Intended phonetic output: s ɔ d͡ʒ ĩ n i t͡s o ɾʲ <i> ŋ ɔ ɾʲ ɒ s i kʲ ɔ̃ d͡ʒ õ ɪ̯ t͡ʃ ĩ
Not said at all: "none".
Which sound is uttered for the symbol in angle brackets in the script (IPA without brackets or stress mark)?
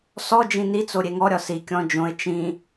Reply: e